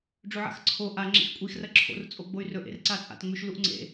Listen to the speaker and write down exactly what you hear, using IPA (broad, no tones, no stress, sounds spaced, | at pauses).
ɖ͡ʐ ɵ ʕ a̰ x ǀʰ o ʔ a ŋ͡ǁ ḛ x kʷʼ i x r ɐ ǁʰ o̰ r t͡sʼ o ɡ͡b o y̯ r ɵ ʔ ḛ r ǀ a t͡sʼ a̰ t ŋ͡m ʉ ʃ l u ʔ ŋ͡ǀ ḛ